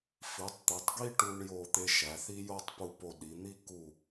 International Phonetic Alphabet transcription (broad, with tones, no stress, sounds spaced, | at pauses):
f i˩˧ tˤ t̪ e˩˧ tˤ ɡ i˥ ʈ u˧ ɳ j o˧˩ t̪ e˧ ʃ æ˩˧ θ i˥ j o˥˧ tˤ p u˧˩ p o˧˩ ɗ i˩˧ n̪ i˥˧ k u˧˩